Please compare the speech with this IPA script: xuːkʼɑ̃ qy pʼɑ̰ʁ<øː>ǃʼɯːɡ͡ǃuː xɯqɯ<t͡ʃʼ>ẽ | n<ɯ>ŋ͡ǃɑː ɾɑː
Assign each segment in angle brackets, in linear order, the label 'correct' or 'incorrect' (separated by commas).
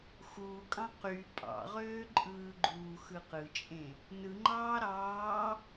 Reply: correct, correct, correct